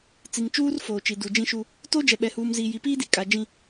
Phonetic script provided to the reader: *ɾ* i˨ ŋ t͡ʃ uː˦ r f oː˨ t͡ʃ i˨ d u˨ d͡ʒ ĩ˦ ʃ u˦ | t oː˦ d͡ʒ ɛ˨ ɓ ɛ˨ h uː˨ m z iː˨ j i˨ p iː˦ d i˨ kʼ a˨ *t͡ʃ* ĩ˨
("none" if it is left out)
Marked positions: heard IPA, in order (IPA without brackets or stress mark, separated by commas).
t͡s, d͡ʒ